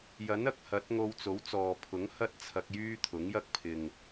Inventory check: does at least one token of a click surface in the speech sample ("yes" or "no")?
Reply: no